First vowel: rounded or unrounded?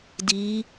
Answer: unrounded